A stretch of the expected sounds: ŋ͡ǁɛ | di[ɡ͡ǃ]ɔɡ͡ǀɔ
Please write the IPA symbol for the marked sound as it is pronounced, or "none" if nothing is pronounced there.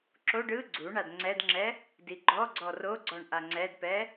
ɡ͡ǃ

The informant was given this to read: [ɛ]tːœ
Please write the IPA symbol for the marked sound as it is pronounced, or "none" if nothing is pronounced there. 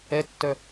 ɛ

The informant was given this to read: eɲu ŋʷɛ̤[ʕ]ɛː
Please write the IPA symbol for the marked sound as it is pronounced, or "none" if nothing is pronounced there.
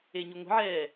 ʕ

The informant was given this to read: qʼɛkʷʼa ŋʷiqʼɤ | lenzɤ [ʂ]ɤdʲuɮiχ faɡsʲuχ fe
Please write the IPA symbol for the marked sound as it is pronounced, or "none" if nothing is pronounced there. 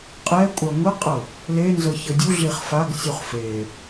ç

